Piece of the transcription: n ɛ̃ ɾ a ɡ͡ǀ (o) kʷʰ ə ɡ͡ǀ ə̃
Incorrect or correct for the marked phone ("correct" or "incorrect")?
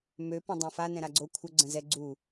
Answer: correct